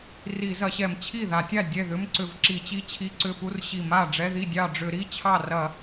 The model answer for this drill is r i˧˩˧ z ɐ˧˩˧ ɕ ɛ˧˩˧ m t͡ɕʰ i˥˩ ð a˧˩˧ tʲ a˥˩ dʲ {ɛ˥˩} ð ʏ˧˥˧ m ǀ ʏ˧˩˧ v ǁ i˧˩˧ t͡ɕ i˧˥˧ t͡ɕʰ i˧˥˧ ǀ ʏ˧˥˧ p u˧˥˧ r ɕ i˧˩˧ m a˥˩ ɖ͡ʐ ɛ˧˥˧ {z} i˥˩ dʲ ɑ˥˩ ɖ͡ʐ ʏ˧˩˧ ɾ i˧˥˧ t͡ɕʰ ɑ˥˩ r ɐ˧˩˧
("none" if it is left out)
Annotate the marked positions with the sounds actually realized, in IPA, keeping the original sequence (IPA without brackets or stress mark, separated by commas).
ɛ˥˩, ð